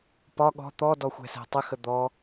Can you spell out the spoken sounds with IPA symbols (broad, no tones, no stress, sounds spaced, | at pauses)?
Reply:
p ɒ ɠ ɔ̤ t̪ ɔ d ɔ xʷ ɛ̤ s ɛ̤ tˤ ə x ə d̪ ɔ